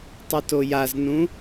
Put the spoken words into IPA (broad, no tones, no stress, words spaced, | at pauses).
tˤɯtojaznũ